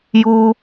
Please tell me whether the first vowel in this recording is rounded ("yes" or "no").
yes